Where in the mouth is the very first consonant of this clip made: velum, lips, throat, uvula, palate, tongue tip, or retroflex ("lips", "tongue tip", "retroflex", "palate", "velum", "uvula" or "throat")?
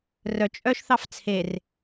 tongue tip